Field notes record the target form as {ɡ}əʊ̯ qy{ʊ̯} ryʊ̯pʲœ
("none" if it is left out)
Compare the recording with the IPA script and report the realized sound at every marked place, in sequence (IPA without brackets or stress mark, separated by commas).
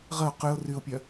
ʁ, ʊ̯